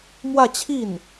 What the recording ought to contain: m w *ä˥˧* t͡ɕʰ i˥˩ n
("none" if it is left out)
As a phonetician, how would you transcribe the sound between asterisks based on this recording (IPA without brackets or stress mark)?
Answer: ä˥˧